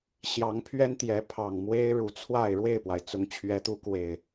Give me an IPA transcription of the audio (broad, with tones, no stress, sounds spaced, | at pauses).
ɕ j ɑ˨˦ ŋ pʰ ɥ ɛ˦ n t̪ j ɛ˨˦ pʰ ɑ˨˩ ŋ m w e˦ ɪ̯ ɻ u˨˩ t͡sʰ w a˥˨ ɪ̯ ɻ w e˥˨ ɪ̯ p w a˩ ɪ̯ t͡s ʊ˨˦ ŋ t͡ɕʰ ɥ ɛ˨˦ t̪ u˨˦ k w e˨˩ ɪ̯